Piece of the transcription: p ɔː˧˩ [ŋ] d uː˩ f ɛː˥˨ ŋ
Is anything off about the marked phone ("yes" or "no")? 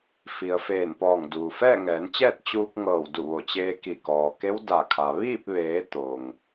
no